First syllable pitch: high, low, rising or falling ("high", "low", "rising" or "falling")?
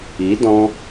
rising